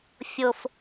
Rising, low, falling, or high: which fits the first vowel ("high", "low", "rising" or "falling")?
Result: low